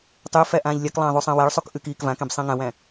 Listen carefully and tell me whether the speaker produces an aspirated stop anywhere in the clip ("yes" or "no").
no